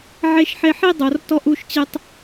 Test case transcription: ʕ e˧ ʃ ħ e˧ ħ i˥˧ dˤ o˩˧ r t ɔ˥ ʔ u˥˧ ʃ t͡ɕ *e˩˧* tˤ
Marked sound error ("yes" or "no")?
yes